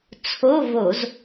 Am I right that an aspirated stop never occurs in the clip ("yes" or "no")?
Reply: no